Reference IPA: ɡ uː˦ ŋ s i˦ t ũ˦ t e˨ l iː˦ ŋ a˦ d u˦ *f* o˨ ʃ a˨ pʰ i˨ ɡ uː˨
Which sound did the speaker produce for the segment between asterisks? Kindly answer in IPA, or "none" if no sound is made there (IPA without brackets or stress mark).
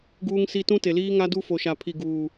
f